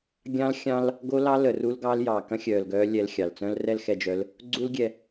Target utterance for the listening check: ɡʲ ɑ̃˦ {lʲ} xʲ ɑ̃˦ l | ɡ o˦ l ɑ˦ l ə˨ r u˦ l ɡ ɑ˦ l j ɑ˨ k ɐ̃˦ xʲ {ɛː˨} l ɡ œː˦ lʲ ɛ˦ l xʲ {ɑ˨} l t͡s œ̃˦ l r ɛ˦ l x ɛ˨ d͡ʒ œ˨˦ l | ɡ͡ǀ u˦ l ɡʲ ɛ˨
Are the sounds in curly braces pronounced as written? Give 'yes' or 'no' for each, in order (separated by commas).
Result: no, no, yes